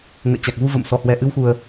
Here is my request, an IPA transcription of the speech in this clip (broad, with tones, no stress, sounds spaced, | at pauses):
ŋ ə̰ː˧˨ t͡ɕ a˨˩ k̚ v u˧ v ə̰˧˨ m s ɔ˧˩ h w ɛ˨˩ ʔ ɨ˧ w x u˨˩ ə̯